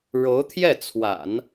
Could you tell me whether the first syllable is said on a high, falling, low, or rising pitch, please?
rising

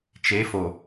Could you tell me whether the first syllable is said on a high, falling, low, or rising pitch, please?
rising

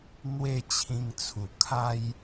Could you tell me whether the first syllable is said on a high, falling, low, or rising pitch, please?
falling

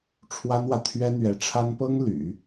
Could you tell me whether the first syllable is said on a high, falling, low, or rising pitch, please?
high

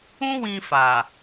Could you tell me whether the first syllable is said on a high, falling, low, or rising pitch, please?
high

